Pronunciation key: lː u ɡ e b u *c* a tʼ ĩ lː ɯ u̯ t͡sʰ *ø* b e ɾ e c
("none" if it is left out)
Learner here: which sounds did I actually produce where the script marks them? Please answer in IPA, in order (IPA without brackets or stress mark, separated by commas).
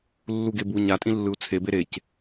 ɲ, e